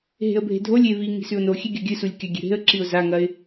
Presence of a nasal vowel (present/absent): absent